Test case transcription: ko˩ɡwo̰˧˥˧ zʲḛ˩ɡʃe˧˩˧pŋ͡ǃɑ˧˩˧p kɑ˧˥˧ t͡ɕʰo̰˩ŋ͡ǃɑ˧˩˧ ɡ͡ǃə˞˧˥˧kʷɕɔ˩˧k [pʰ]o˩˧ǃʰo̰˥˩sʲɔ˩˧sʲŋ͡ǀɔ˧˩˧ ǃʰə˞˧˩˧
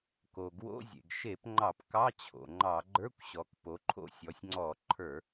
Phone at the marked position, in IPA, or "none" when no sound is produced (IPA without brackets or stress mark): p